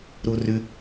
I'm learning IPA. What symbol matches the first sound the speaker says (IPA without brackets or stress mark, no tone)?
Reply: ɾ